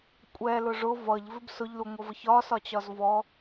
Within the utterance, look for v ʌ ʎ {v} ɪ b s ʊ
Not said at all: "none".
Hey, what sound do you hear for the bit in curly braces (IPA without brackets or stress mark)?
v